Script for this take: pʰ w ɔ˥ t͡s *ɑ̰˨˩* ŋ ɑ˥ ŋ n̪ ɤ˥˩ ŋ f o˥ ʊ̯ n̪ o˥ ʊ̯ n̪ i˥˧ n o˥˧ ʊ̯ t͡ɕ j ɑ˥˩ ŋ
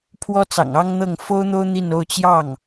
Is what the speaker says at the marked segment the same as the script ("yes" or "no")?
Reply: yes